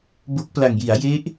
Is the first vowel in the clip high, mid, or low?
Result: mid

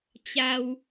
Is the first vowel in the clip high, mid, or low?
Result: low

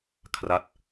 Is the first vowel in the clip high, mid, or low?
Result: low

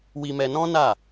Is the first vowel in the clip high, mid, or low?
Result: high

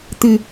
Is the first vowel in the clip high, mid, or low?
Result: high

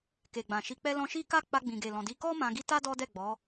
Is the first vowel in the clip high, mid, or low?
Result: mid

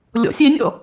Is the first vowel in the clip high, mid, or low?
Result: mid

